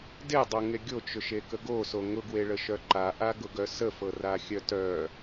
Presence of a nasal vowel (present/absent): absent